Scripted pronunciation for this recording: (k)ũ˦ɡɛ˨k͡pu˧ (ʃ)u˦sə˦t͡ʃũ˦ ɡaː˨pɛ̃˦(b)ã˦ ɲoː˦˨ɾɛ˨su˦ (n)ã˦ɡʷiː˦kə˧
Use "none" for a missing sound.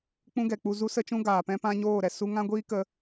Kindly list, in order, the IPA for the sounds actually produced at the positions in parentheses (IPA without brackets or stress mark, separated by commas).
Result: k͡p, z, p, ŋ